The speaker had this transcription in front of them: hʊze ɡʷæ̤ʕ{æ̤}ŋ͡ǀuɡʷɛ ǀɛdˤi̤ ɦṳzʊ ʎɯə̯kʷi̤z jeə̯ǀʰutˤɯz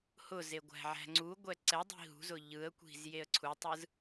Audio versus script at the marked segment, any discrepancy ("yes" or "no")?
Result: no